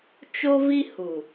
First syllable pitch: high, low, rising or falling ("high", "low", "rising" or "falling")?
high